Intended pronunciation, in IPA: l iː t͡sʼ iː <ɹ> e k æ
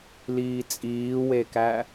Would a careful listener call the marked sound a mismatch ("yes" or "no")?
yes